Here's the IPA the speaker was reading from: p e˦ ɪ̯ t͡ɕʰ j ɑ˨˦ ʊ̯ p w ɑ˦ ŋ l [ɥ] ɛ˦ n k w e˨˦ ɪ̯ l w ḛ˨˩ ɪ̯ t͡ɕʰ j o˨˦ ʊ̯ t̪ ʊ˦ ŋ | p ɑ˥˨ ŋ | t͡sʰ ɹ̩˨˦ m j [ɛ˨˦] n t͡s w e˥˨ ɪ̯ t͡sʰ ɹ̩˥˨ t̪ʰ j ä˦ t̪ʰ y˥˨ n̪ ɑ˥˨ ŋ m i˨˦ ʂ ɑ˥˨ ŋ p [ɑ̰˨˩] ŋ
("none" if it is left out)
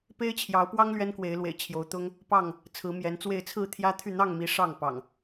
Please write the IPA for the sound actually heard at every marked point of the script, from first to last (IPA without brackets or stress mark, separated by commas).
ɥ, ɛ˨˦, ɑ̰˨˩